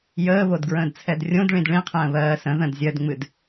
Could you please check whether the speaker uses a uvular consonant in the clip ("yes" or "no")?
yes